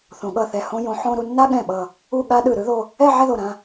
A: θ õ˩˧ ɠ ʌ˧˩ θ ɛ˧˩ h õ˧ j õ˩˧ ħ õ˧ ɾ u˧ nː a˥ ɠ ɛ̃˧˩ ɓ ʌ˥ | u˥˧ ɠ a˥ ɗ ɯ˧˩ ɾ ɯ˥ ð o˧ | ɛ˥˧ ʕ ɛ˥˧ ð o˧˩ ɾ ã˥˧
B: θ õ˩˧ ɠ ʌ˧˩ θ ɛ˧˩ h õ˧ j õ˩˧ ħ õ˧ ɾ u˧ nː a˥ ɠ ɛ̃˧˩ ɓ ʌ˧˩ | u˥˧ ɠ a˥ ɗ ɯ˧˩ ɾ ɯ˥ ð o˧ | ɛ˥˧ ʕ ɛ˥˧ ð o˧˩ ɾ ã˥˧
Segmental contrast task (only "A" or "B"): B